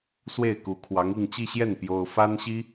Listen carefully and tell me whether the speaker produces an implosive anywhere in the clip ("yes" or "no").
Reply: no